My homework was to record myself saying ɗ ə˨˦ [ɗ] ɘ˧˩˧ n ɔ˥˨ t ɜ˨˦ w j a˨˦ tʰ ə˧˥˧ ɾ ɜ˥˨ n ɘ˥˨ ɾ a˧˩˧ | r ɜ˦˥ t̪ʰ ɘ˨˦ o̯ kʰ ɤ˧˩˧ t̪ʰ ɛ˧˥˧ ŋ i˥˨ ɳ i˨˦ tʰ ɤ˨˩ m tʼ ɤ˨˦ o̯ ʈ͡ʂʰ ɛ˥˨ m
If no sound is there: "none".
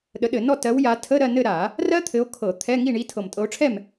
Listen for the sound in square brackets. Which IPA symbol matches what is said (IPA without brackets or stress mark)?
ɗ